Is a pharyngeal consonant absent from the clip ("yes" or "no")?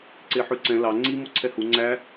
no